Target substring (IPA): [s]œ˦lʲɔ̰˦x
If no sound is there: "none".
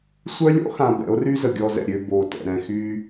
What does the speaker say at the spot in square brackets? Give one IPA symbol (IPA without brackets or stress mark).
sʷ